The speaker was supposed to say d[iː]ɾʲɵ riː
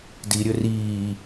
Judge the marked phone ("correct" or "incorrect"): incorrect